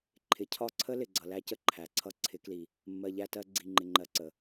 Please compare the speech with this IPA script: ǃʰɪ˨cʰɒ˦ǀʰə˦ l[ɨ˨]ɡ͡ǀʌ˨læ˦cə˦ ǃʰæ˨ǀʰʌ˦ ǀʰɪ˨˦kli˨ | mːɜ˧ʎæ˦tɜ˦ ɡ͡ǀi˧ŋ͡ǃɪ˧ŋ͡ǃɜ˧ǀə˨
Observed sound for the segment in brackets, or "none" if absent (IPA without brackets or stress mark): ɪ˨